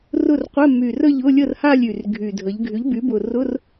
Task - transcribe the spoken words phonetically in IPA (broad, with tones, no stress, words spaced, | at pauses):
rʊ˥˨rqʷɛ˧˥˧ my˨˩rə˥˨ʎ ʊ˧˥˧lʲə˥˨rha˥˨lʲ y˨˩rɡʱy˨˩dʱə˩˥ʎ ɡʱy˩˥ʎby˩˥bʊ˨˩rʊ˧˥˧r